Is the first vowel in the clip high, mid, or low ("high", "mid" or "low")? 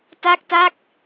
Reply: low